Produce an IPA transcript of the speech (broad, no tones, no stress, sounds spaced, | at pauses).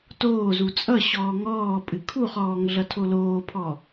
t oː z u t͡sʼ ʌ ɕ ɔː ŋ ɔː pʼ ɨ kʰ u χ ɔː ŋ ɮ ʌ tʰ o l oː pʰ ɔ